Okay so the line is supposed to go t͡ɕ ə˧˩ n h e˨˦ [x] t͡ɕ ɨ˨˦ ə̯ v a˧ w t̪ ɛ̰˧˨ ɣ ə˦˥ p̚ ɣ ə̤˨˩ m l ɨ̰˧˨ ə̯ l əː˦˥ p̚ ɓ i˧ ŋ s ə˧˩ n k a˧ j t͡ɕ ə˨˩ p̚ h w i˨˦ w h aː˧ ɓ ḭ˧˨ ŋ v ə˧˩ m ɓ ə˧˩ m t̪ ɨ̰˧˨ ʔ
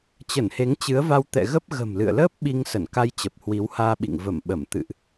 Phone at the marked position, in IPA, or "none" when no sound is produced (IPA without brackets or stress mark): ŋ